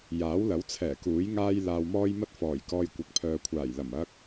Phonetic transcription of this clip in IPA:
j aː˨˥ w l ɐ˨˥ w t͡sʰ ɛː˨˩ k uː˨˥ j ŋ aː˥ j l aː˧ w m ɔː˥ j m ɐ˥ t̚ f ɔː˨˩ j k ɔː˧ j kʷ ɐ˨ k̚ pʰ œː˨ kʷʰ aː˨˩ j l ɐ˨˩ m ɐ˧ k̚

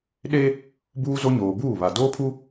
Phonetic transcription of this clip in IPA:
ɗ e˦ | b uː˦ z o˦ ɲ oː˨ b uː˦˨ β a˨ d oː˦ pʰ u˦

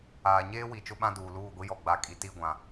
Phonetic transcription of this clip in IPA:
aː˨ ɲ eː˦ w i˨ t͡ʃ ʊ˦ ɓ ã˦ d uː˨ l uː˦˨ ɡʷ i˦ j ɔ˨ ɡ͡b a˨ kʼ i˨ t i˦˨ ɡʷ ã˨

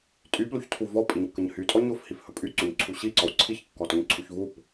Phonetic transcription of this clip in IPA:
tʼ y p l u ç tʰ u v ɔ pʼ i ɲ kː ə ɲ h y tʼ ɔ ɲ o f h i f h ɵ pʼ y ǀ u ɲ ǀʰ u ɕ i ǀ ɔ w ǀʰ i ç kː ɔ t ɔ ɲ ǀʰ u ç v u p

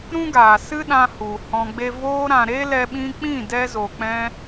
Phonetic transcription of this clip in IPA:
ɾ ũ˦ ɡ aː˨ s ɨ˦ ɗ ã˧ h u˨ h ɔ̃˧ ɡ͡b e˦ v oː˧ ɾ ã˨ ɾ e˦ l ɛ˧ ɓ ĩ˧ k͡p ĩ˦˨ d ɛ˦ z o˨ k͡p ɛ̃˧

